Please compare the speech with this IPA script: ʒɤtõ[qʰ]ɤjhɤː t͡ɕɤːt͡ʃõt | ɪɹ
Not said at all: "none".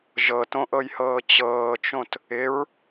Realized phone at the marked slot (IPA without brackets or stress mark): ʔ